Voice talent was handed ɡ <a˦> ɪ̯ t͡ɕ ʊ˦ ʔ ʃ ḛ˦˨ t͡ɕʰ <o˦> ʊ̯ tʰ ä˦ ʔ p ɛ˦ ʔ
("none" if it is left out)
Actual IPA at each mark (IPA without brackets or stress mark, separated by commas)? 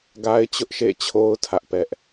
a˦, o˦